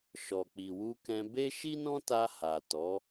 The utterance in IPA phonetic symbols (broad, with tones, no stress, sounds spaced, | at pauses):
ʃ ɔ˨ k͡p i˨ w u˧ k ɛ̃˧ b e˦ ʃ i˦ n ɔ̃˦ t a˧ h a˨ t ɔ˨˦